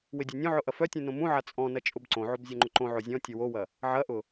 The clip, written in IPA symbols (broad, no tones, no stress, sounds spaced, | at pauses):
w ɪ dʲ œ nʲ õ ʕ ʊ ʔ ɐ f œ tʲ ũ n õ m ũ ʕ a t͡sʼ ɔ̃ n ɐ t͡ʃʼ ʊ b ǀ õ ʕ o b zʲ œ ŋ͡ǃ ʊ ǃ õ ʕ o zʲ ɔ̃ tʲ ʊ w o w ɐ | ʕ ɐ ʔ ʊ